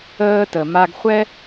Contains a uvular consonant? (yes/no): yes